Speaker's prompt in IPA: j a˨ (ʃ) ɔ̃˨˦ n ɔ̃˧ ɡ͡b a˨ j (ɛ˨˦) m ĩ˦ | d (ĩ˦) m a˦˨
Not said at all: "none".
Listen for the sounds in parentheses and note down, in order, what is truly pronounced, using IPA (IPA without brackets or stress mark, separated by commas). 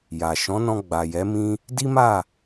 ʃ, ɛ˨˦, i˦